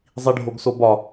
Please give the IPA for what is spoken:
zˤ i ɖʱ o ɡ s o b ɒ

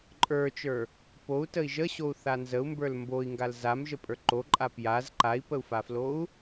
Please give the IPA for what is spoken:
ǃʼ ə˞ t͡ʃ ə˞ | p o u̯ t ə i̯ ʒ ə ɕ o u̯ θ a n z ə u̯ m b ə˞ l m b o i̯ ŋ ɡ a l z a m ʒ ə pʼ ə˞ ǃ o ǃʼ a p j a z ǃ a i̯ p ə u̯ f a f l o u̯

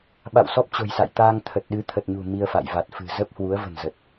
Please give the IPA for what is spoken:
ɓ a̰˧˨ w s ɔ˦˥ p̚ t͡ɕ o̤˨˩ j s a̰˧˨ j t̪ aː˧ ŋ t̪ʰ ə˨˩ t̚ ɗ ɨ˨˦ t̪ʰ ə˨˩ t̚ ɲ ṳ˨˩ m i˧ ə̯ f a̰˧˨ j v a˨˩ t̚ f ɨ̤˨˩ z ə˦˥ p̚ h w u˨˦ ə̯ v ə̤˨˩ n z ə˨˩ t̚

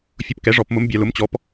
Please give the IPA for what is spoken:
fʲ ʊ˧˥ p k ɛ˩˥ ʐ ɔ˩˧ p m ʊ˧˥ m bʲ a˩˧ l ʊ˩˥ m t͡ɕ ɔ˩˥ p

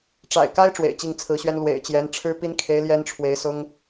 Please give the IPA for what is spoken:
ʈ͡ʂ a̰˨˩ ɪ̯ k a˥ ɪ̯ ʈ͡ʂ w ḛ˨˩ ɪ̯ t͡ɕ i˥˩ ŋ t͡sʰ ɹ̩˧˥ ɕ ɥ ɛ˥ n l w ḛ˨˩ ɪ̯ t͡ɕ j ɛ˧˥ n ʈ͡ʂʰ ɻ̩˥ p i˥ n kʰ e˧˥ ɪ̯ l j ɛ˥ n ʈ͡ʂʰ w e˧˥ ɪ̯ s ʊ˥ ŋ

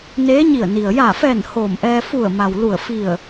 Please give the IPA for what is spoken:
n eː˧˥ ɲ i˧˩ ə̯ n i˩ ə̯ j a˧˩ f ɛː˧˩ n h oː˧˩ m ʔ ɛː˧ f u˧˩ ə̯ m a˩ w l u˧˩ ə̯ f i˧˩ ə̯

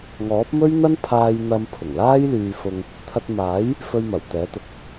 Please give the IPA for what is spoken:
ŋ ɔː˨˥ p̚ m ɵ˥ ɥ n̪ ɐ˥ n pʰ aː˧ j n̪ ɐ˧ m pʰ ʊ˨˩ ŋ l aː˥ j l yː˧ f ʊ˧ ŋ | t̪ʰ ɐ˧ t̚ m aː˨˥ j | f ɵ˧ ɥ m ɐ˨˩ w t̪ ɛː˨˥ t̪ ʊ˨ k̚

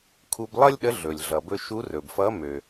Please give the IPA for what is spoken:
kʰ u˧ b lˠ ʌ˥ lʲ ɗ ə˧˥ ɮ ɵ˩ lʲ ɮ ʌ˩ b ɵ˧ ʃ u˧˥ r ɵ˩ b f ʌ˧˥ m ø˩

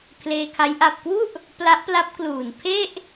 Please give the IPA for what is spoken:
pʰ l eː˧ kʰ a˦˥ j ʔ a˨˩ p̚ k w u˥˩ ʔ | p l a˦˥ ʔ p l a˦˥ p̚ k l uː˨˩ n pʰ e˥˩ ʔ

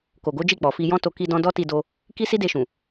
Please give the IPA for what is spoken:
k o˨ ɡ o˨˦ d͡ʒ i˦˨ k͡p ɔ˨ f i˧ j ɔ̃˦ t o˧ k i˧ d ɔ̃˧ d ɔ˦ t i˧ d o˧ | k i˦ s i˦ d e˧ ʃ ũ˨

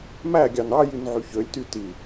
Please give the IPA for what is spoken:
m æ ɡʲ ɑ n ɑ j y n ʕ y ç ø lʲ t y t i

